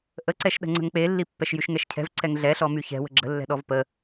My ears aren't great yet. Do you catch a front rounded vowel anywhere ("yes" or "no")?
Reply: yes